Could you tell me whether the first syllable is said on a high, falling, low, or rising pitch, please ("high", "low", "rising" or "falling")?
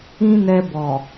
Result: high